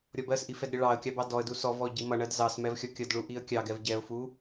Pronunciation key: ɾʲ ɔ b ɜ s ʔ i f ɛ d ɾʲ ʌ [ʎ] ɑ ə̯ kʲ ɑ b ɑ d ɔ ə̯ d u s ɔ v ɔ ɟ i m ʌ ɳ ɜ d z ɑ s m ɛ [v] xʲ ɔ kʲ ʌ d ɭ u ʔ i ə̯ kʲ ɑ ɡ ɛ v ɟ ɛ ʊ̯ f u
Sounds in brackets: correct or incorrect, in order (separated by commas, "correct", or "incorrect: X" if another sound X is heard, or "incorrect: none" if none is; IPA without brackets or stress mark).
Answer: incorrect: ɭ, correct